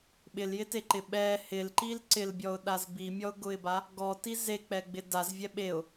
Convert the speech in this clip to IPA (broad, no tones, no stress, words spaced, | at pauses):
ɓɪljɪteǃɪ ɓɛ hɪlǃil ǀɪlbʲɔʊ̯ɗaz bimʲɔʊ̯ɡʊɪ̯ba | ɡɔti zek͡pɛɡ͡bɪ dazvʲɛ ɓeʊ̯